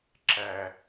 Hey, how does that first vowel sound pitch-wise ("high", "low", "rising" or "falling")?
low